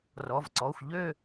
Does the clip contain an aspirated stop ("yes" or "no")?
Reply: no